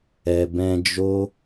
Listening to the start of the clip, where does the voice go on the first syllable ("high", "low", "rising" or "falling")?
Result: low